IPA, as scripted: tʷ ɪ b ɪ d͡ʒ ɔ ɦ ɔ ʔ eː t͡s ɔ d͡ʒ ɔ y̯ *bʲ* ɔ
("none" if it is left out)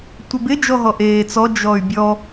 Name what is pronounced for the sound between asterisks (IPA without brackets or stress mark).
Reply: bʲ